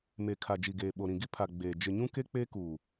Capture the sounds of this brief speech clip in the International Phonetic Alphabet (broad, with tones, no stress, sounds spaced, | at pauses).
m e˨ kʰ a˨ d͡ʒ i˨ ɡ eː˨ ɓ o˨ ɾ ĩ˨ ɡ i˦ pʰ a˨ ɡ͡b eː˨ d͡ʒ ɪ˨ ɲ ũ˦ k e˦ k͡p e˦ k uː˨